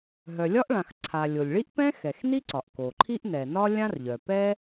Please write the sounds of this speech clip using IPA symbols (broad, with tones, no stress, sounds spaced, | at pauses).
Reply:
ɦ œ˩ lʲ ɒ˥ ʔ ɭ ã˩ x ǀʰ a˩ lʲ o˩ lʲ ɭ i˥ ʔ p ɛ̃˥ x ɛ˩ x n i˥ ǀ ɒ˩ ʔ k o˩ ǃʰ i˥ ʔ n ɛ˩ n ɒ˥ lʲ ã˥ r ʎ œ˩ p ɛ˥